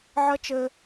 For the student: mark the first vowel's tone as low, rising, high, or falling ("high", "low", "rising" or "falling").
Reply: high